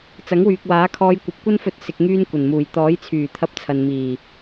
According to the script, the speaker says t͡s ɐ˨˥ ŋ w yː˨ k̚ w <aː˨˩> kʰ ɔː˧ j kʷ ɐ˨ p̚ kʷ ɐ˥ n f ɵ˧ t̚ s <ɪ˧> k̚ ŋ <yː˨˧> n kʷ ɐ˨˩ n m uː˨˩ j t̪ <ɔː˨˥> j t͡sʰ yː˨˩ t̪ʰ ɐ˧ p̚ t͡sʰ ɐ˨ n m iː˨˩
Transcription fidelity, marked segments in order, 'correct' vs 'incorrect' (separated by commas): incorrect, correct, incorrect, correct